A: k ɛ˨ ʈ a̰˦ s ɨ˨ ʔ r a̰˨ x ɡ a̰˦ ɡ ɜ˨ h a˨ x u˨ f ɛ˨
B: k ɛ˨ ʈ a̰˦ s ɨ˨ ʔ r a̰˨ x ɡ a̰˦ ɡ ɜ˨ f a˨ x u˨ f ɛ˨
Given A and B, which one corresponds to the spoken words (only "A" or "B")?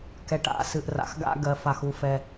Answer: B